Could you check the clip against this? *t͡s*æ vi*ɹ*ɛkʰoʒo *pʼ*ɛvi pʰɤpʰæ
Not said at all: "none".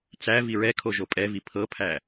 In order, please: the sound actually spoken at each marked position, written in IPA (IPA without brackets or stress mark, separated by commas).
t͡s, ɹ, pʼ